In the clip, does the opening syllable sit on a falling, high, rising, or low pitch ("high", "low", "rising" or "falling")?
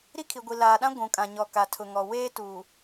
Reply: high